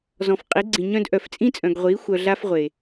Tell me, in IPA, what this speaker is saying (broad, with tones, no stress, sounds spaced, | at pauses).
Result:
z ɔ̃˨ f qʼ i˨˦ ɡ͡ǀ ĩ˨ ɲ œ̃˦ d ʔ œ˨ f t͡sʼ ĩ˦ t͡sʼ œ̃˨ ɡ ʁʷ iː˨˦ xʷ œ˨ ɮ a˦ f ʁʷ eː˨